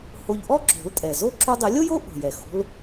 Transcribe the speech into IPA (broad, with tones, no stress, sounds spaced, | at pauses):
h o˧ ʎ ʔ ɔ˥ ǁ o̤˩˥ l tʼ ɛ˩ z o˥ ǁ u˧ dˤ ɪ˩˥ lʲ o˥ j o˥ ʔ o̤˩ j ɛ˩ x o̤˧ l